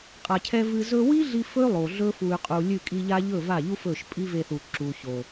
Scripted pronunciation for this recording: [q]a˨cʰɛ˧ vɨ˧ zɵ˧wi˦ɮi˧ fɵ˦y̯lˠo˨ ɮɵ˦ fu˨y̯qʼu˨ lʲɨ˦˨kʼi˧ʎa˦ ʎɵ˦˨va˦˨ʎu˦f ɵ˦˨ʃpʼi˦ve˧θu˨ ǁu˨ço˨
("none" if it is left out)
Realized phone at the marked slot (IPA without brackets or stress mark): qʼ